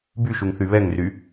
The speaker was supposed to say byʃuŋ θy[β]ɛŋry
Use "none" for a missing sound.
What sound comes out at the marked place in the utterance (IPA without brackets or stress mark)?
β